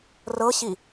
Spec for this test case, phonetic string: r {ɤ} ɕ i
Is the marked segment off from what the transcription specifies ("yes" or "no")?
no